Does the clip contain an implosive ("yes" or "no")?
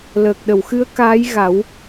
yes